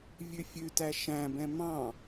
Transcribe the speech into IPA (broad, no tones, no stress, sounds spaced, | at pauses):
vʲ ʉ fʲ ʉ t æ ʃ æ̃ b ɛ̃ m ɑ̃